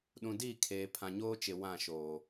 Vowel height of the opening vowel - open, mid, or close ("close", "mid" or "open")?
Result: close